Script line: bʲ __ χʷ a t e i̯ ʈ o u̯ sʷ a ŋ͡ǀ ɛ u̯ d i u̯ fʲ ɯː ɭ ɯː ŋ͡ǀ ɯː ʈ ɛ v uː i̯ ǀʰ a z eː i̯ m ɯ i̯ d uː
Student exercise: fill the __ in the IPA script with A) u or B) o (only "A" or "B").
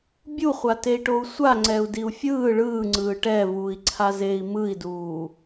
A